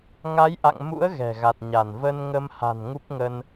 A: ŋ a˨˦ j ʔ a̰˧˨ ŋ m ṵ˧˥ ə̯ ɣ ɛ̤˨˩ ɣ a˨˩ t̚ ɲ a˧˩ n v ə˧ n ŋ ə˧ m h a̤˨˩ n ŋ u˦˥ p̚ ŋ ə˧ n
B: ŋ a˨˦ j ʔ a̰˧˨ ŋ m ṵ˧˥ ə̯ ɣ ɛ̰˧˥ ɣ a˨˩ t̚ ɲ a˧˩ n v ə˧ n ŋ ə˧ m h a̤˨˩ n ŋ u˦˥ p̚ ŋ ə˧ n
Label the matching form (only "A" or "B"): A